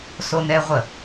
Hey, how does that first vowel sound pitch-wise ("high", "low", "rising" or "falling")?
high